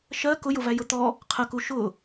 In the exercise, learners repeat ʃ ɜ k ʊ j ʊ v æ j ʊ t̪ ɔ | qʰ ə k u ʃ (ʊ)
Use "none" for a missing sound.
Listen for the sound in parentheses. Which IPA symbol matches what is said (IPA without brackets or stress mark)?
ʊ